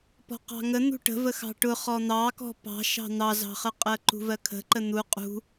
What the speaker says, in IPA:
pɔ̤qɑ̤ŋə n̪ṳʈə̤ vəxɑ̤ʈʊ χɔn̪ɑkɔ̤ pɑ̤ʃɑ̤ n̪ɑzɑ̤χə qʼɜǃṳvɜkʰə̤ ǃən̪u qʼṳ

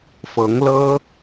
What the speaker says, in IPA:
fɤ˨˦ŋlɤ˦

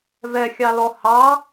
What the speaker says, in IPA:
vɛxʲɑlɔ hɑ

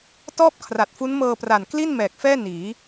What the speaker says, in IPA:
tɔː˥˩p̚ kʰra˨˩t̚fu˦˥nmɤː˧pra˨˩n kli˥˩n mɛː˨˩k̚fɛː˥˩ niː˩˦

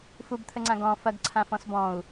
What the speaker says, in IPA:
fubt̪ʰəŋ͡ǀã ɡɔ̃ fɐɡǀʰãfɔ̃s bɔ̃u̯

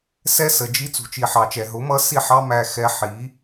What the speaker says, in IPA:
sɛ˦sə˨ d͡ʒi˦ t͡sṳ˨t͡ʃi˨ħɑ˨t͡ʃɛ˨ ɦʊ˨˦ mʌ˦ si˦˨ħɑ˦ mæ˦xɛ˦ ħi˨˦

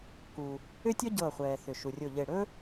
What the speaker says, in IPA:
ku˩ | ʏ˥tʲɔ˥ ɟɤː˧˩χʷɛː˩θʏ˩ ʃu˩rʲo˧˩ʎe˧˩ ɽɵ˥

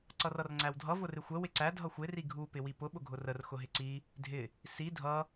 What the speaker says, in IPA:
ǀʌrʌrŋ͡ǀæwdʱʌ vʊrɪxʷə wɪǀæ dʱʌxʷɪ riɡʱu pɪwipʊ ɓʊɡʱʊrər xʊɦɪǀi | dʱɪ | si dʱʌ

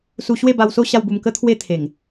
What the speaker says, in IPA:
su˧ɕwe˥˧ba˧wso˥˧ ɕa˥˧wbu˧mkə˦ t̪ʰwe˥˧t̪ʰe˨˩ŋ

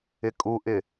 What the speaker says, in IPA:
ɪkʼuʔɪ

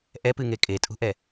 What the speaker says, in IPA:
ʔɛpɨŋe kʼetʼṳʔɛ

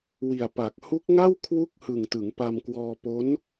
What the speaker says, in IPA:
wi˨˩a̯pa˨˩k̚ hu˦˥k̚ŋa˥˩w kʰwu˥˩k̚ hɯ˨˩ŋtɯ˩˦ŋ pa˧mkwɔː˧po˦˥n

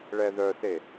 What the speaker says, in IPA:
ɭɛðœse

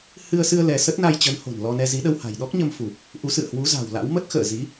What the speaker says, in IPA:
hɨ˧ə̯sɨ˧ə̯ lɛ˧ sə˦˥t̚na˧jt͡ɕə˨˦nho̤˨˩n lɔ˧nɛ˧ zi˨˦ɗə˧w ha̤˨˩j ɗɔ˦˥k̚ɲə˧m fu˨˩p̚ | ʔu˨˦sɨ̰˧˨ə̯hwu˨˦ za̤˨˩wla̰˧˥w mə˦˥t̚xə̰ː˧˨zi˨˦

